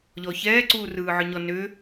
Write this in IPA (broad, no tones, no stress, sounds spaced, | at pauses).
ʎ ɔ ç ɛː ǀ uː r ɯː ʕ ɯ ɲ ɔ n ʏ